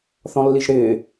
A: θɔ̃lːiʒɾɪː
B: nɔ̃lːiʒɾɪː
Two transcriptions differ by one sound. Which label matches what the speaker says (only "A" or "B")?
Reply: A